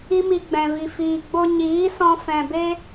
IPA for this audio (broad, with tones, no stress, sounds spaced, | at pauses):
i˦ m i˧ ɡ͡b ɛ̃˨ v i˨ f iː˨ ɡ͡b o˧ ɲ iː˨˦ s ɔ̃˧ f ɛ̃˨ b e˦